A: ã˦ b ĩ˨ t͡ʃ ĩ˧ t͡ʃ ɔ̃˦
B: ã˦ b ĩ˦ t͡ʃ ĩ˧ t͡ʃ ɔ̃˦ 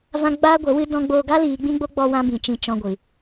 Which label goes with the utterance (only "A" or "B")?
A